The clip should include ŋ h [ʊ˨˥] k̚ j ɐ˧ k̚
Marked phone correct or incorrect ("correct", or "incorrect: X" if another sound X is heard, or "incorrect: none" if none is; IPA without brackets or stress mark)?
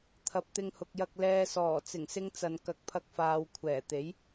incorrect: ʊ˨